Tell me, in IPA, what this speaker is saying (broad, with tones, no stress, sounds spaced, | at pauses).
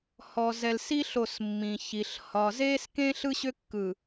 h ɔ˨ z ɛ˨ l s i˦ ɬ o˦˨ s mː ĩ˨ ç i˨ ɬ h ɒ˨ z eː˦ s k ẽ˦ ɬ ɯ˦ ɕ ʏ˦ kː ɯ˨